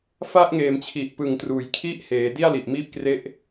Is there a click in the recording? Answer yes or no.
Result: no